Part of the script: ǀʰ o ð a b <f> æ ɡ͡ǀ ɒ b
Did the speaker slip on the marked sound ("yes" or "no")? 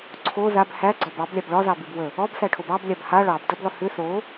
yes